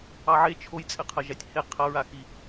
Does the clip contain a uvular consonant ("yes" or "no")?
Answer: yes